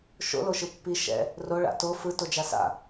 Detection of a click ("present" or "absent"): absent